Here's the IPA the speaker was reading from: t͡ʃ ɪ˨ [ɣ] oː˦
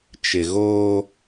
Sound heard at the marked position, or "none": ɣ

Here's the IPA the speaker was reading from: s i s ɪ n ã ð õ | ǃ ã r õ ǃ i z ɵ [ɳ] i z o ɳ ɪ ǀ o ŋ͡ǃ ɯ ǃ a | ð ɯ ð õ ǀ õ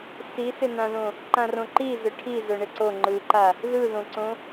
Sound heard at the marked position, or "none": ʈʰ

